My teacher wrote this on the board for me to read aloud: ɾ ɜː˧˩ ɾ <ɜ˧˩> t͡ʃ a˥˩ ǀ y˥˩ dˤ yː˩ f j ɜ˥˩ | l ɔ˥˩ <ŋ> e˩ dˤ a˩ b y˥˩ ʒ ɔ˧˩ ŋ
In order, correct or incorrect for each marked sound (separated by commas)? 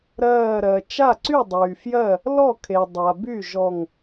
incorrect, incorrect